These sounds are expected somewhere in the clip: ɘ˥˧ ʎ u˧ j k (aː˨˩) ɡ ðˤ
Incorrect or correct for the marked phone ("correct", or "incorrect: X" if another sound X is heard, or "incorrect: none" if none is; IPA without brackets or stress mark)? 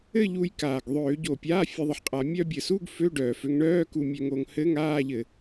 correct